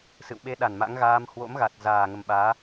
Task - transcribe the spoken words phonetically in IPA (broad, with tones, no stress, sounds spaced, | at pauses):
s ɨ̰˧˨ w ɓ e˧ ɗ a˧˩ n m a̰˧˥ ŋ ɣ aː˧ m h w o̰˧˥ m ɣ a˨˩ t̚ z aː˨˩ ŋ ə˨˩ m ɓ aː˨˦